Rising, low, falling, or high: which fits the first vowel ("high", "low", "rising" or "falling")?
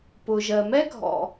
low